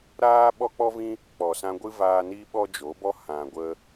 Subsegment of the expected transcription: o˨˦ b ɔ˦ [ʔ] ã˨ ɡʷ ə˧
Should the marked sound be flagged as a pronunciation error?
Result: yes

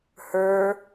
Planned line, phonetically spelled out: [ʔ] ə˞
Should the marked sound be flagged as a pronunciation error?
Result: yes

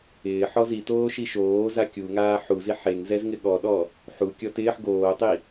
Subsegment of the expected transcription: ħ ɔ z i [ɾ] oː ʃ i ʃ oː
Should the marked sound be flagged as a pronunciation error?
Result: yes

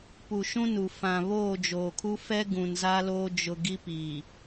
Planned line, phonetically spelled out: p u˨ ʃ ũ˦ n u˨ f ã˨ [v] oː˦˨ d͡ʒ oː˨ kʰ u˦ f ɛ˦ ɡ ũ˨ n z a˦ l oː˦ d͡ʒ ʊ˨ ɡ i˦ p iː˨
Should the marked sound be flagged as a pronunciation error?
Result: yes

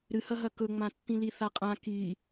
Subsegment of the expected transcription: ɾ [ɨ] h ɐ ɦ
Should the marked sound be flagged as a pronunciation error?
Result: no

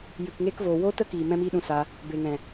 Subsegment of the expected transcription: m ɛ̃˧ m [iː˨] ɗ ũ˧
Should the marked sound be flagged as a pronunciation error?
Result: yes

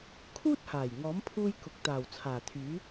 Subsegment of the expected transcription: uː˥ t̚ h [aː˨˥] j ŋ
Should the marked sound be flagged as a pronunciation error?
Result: yes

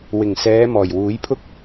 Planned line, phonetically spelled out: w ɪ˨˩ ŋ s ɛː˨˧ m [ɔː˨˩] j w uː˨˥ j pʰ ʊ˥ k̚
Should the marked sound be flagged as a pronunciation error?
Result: no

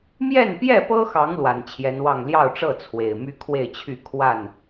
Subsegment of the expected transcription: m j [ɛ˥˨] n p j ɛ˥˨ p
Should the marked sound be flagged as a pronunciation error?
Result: no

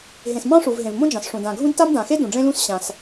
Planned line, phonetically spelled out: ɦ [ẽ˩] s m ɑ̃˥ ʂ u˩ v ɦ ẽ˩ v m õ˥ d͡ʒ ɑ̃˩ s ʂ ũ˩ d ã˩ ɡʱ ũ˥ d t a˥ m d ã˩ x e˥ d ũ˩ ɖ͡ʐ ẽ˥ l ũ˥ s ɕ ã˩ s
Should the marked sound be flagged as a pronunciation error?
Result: no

